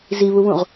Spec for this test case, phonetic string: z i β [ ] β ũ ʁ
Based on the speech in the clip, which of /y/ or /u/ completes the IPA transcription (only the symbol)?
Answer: u